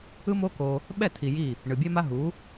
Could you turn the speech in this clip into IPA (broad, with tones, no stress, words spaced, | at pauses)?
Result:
ɯ˦mo˦ko˧ | ɓɛ˦˨tʰi˨ ji˦˨ | ɳɯ˨bʲɛ˦ma˦ ɦu˨˦